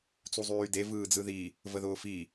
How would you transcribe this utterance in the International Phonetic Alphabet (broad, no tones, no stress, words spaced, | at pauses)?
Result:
t͡suzˤyːde vɯːd͡zɯði | vəðʊːfi